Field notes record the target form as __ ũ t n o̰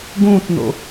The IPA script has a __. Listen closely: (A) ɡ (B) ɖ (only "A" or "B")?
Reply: A